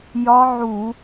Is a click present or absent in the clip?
absent